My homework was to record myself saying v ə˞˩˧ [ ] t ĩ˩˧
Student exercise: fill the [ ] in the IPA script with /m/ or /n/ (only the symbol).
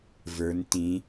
n